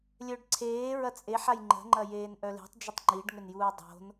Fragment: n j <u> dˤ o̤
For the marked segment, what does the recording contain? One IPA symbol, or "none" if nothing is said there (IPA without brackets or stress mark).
uː